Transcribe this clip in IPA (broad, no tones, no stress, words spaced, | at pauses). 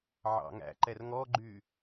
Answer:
ʕɑ̰ŋæ̰ǃɛr ŋɔɡ͡ǃy